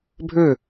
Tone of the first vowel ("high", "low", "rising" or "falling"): falling